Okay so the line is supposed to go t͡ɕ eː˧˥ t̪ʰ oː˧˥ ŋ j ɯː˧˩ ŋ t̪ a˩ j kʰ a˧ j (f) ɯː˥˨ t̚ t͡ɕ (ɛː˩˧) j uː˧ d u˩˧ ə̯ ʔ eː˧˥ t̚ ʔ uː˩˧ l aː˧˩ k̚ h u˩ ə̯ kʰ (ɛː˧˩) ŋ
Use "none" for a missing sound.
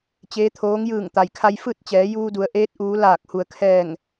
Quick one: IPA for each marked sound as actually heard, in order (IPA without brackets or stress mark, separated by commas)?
f, ɛː˩˧, ɛː˧˩